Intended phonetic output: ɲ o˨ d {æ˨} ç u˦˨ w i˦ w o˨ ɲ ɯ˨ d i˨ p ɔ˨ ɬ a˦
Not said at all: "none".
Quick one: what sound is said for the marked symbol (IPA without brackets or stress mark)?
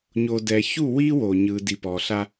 ɛ˨